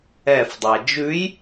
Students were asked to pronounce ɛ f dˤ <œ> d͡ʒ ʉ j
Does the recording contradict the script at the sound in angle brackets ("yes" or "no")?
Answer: yes